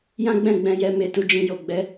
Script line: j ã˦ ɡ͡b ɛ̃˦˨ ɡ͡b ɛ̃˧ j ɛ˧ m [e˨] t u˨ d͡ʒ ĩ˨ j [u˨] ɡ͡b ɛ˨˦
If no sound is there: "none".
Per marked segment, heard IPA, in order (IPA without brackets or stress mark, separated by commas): e˨, o˨